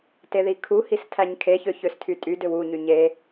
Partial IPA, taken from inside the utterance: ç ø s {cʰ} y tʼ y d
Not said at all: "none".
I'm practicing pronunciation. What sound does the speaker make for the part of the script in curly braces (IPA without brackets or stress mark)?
tʰ